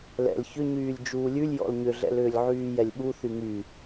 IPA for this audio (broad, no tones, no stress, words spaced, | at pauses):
lɛ̰l çʏɲyːlʲ d͡ʒuːlʲʉlʲ jɔ̰lɲʏɮɛ̰lʏːlʲ ʕyːjɛlʲɓu θyŋy